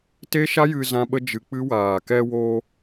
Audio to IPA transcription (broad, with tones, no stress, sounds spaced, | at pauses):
t eː˦ ʃ a˦ j ɨ˧ z ã˦ ɓ ə˦ d͡ʒ ɨ˧ k͡p ɨ˦ w aː˨ k ɛ˧ w oː˧